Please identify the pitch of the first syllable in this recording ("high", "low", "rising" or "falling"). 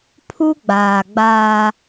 high